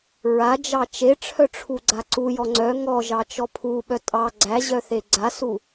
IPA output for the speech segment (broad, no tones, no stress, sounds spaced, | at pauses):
ɹ a d͡ʒ ɑ t͡ʃ e ʈ͡ʂʰ œ ʈ͡ʂʰ u ɡ͡ǀ a ǀ u j ɔ ŋ͡ǀ œ ŋ ɔ ʒ ɑ t͡ʃ ɔ pʰ u ɓ œ tʼ ɑ ɡ͡ǀ æ ʑ œ θ e ɡ͡ǀ a s u